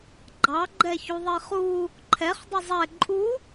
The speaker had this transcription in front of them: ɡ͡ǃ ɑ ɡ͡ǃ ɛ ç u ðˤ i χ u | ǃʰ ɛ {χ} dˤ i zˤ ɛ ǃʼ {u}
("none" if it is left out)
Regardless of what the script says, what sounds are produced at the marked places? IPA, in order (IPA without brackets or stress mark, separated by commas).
χ, u